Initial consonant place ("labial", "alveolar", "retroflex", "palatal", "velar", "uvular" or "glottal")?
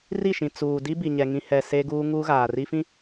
alveolar